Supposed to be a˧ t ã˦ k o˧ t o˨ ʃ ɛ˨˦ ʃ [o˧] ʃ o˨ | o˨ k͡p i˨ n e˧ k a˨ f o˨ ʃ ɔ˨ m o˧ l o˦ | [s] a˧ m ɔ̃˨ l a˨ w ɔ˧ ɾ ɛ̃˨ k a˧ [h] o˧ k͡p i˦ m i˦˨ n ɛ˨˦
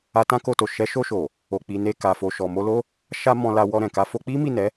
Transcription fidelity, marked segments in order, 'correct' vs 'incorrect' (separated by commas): correct, incorrect, incorrect